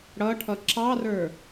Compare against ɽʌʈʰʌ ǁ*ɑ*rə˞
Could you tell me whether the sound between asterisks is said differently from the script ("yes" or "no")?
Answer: no